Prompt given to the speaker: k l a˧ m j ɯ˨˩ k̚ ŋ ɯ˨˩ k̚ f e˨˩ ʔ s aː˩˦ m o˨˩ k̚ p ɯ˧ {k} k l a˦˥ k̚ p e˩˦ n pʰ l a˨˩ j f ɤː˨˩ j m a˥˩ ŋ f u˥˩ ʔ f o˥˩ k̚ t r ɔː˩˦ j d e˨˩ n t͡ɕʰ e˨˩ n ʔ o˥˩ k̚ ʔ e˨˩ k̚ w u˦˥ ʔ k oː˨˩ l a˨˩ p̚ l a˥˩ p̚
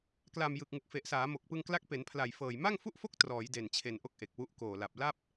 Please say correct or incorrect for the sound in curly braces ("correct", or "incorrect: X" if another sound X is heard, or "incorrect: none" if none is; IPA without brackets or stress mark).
incorrect: ŋ